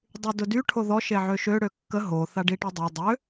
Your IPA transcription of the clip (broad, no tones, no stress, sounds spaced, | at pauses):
dˤ y d ʊ d y ʈʰ o ð ɔ ʃ e ʕ ø ʃ ø ɽ ø kː ə ɦ o θ a ɖ i ʈ i dˤ a dˤ ø